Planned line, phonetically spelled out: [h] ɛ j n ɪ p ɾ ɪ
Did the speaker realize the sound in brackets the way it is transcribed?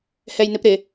yes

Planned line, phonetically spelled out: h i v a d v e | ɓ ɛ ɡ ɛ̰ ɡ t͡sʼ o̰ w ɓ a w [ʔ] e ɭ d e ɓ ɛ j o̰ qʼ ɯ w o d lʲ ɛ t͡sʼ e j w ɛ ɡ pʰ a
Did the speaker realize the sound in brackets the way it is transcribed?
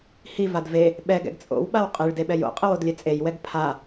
no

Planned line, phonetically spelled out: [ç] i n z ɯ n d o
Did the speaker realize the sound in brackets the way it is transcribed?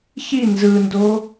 yes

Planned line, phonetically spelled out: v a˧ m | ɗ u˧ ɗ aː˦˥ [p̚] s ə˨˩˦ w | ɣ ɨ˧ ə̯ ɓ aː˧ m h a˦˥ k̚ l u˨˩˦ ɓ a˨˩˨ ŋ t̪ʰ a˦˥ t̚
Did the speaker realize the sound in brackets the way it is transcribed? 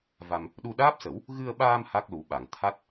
yes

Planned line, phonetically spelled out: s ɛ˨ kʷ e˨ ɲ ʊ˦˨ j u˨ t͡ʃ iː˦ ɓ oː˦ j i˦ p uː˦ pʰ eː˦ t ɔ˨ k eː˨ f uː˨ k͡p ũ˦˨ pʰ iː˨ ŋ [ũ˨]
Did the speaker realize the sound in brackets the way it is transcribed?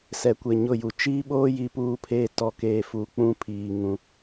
yes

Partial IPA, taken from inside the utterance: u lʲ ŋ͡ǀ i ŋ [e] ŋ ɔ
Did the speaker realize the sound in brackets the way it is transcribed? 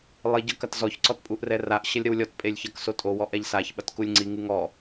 no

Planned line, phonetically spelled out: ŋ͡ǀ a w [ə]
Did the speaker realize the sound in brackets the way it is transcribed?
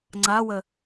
yes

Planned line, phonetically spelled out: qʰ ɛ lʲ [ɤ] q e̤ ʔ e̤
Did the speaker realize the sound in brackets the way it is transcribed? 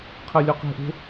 no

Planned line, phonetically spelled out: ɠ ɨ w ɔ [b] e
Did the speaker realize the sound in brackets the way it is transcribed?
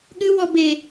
yes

